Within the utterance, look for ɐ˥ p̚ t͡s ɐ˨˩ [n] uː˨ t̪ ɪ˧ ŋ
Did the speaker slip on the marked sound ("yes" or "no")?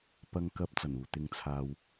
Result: no